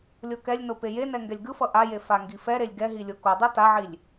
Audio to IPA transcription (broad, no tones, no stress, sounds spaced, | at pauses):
lʲ o k ɛ lʲ n o p e j e n ɛ ŋ ɡ ɛ lʲ ɡ ɯ f ʌ ʔ a j e f a ŋ ɡ i f ɛ ɾ e lʲ ɡ ɛ ɦ i lʲ o k o dˤ ɯ t a ʕ i lʲ